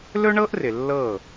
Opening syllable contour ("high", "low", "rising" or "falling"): high